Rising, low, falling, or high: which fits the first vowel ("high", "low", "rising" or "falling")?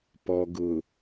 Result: low